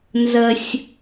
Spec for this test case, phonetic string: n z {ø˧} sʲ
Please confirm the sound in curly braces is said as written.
no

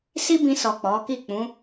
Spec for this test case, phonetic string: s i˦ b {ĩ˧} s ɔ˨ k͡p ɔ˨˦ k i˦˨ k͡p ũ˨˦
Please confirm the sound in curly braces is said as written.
yes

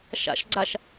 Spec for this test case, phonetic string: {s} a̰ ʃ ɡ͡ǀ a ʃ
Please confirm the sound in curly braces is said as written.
no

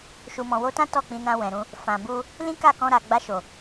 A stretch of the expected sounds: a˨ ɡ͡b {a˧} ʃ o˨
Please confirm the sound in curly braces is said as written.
yes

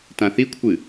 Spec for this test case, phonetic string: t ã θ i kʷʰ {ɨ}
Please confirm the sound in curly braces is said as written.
yes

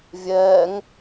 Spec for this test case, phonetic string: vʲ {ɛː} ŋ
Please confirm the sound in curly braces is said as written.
yes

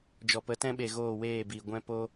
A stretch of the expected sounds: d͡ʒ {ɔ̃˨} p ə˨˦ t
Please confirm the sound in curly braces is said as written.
no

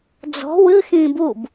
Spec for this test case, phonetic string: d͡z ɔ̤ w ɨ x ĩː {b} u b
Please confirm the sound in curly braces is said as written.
yes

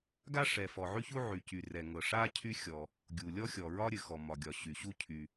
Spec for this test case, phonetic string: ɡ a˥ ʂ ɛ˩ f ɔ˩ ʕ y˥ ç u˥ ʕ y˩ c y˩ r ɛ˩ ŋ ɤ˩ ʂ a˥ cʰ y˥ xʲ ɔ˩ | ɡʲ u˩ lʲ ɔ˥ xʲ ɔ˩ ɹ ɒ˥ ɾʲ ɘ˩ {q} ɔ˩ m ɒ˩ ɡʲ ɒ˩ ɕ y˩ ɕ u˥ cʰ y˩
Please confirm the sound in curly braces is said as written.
no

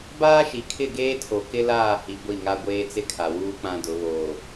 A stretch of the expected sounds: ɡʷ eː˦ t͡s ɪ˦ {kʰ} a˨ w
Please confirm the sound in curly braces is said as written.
yes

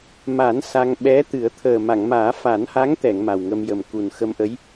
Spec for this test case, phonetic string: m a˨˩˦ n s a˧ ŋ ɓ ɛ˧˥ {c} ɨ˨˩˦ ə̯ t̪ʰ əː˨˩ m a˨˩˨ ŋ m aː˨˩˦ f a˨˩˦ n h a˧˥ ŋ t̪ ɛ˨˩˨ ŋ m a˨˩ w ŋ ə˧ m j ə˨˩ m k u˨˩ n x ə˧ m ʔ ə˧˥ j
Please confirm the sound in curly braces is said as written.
no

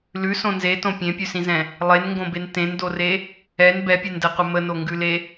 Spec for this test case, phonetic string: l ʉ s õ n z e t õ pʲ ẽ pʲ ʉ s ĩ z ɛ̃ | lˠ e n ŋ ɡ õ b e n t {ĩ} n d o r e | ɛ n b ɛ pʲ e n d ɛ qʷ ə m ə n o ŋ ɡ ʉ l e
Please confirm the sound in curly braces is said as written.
no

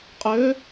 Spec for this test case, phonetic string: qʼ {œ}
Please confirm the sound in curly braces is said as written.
no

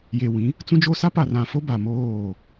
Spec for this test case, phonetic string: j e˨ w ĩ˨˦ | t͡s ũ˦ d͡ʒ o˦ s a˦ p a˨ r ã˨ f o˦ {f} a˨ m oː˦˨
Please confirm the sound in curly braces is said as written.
no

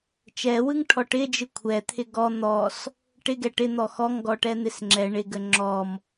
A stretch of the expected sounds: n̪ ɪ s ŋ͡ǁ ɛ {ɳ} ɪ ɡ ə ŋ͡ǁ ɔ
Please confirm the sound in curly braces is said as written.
yes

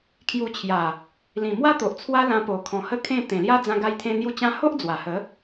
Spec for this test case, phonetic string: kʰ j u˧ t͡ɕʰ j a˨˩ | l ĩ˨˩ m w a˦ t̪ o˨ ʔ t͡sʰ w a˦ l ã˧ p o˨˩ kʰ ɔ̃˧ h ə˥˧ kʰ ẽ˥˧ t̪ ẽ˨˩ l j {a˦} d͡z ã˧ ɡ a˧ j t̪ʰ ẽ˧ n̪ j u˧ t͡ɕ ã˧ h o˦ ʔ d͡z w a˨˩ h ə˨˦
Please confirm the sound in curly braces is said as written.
yes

